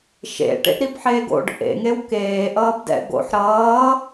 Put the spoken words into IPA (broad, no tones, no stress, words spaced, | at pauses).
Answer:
ʃḛ ʈḛʔɾibħeːɡo̰ɖ ʔḛŋew keːʔʌːb dɛ̰ɡo̰ħ ɾʌː